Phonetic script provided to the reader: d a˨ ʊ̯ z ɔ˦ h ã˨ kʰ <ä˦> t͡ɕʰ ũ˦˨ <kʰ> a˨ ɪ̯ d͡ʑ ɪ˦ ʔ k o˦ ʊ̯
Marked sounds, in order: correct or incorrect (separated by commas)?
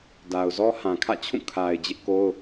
incorrect, correct